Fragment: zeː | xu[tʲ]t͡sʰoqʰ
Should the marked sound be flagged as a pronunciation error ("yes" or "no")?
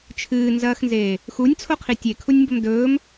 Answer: yes